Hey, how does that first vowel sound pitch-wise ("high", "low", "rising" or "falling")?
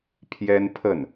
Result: high